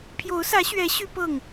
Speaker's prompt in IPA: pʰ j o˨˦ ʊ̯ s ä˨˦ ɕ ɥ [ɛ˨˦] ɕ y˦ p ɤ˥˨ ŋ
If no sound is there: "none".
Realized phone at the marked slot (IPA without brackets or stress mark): ɛ˨˦